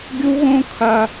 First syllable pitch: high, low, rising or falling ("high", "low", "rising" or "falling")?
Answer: high